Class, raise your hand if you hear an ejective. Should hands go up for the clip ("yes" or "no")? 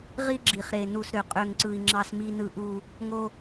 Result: yes